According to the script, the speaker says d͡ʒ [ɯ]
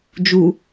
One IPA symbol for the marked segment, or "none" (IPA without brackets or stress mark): u